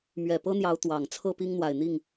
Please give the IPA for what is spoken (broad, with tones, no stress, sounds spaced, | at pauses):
m ɥ ɛ˨˩ p ɤ˦ n̪ j ɑ˨˦ ʊ̯ t̪ w ɑ˨˩ ŋ t͡sʰ ɤ˥˨ p i˦ ŋ n̪ w a˨˩ ɪ̯ n̪ i˥˨ ŋ